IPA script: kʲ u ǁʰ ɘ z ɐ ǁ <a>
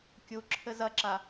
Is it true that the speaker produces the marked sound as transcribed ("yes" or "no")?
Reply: yes